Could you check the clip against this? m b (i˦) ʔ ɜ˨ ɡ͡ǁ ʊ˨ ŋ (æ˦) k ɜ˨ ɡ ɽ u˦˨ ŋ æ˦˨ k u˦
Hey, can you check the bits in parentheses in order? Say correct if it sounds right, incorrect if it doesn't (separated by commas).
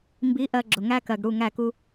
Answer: incorrect, correct